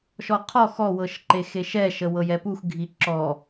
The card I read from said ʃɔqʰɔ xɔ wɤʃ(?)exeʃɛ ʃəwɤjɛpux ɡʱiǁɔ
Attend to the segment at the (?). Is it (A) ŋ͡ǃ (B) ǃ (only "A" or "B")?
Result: B